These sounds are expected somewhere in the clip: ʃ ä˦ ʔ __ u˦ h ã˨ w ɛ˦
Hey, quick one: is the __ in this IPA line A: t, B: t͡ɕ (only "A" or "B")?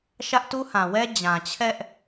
A